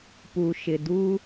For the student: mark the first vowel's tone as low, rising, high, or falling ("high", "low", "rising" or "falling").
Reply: low